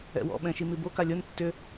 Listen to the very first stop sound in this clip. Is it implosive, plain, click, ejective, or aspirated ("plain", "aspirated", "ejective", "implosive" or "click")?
implosive